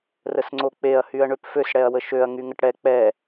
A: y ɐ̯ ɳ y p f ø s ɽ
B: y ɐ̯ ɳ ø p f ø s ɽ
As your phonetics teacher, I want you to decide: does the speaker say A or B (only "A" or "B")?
B